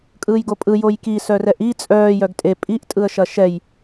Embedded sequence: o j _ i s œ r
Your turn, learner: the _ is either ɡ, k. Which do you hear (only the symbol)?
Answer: k